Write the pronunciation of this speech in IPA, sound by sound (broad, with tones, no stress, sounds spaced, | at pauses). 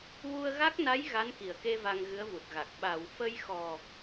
w u˧ ə̯ ɣ a˦˥ k̚ n a˧˥ j ɣ a˧˥ n k i˨˩˨ ə̯ k e˧ v a˧ ŋ ɣ ɨ˧˥ ə̯ v u˨˩ t̚ ɣ a˨˩ k̚ ɓ a˨˩˨ w f ə˧ j x ɔ˨˩